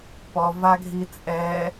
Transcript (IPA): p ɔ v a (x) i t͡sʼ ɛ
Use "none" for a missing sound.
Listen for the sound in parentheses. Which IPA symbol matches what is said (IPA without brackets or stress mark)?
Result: ɡʱ